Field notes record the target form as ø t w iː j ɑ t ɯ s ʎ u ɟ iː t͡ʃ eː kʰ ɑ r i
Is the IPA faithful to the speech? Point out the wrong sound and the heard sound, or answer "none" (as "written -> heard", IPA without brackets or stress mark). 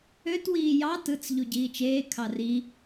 s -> t͡s